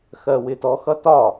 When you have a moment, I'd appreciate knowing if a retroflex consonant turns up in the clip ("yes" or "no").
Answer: no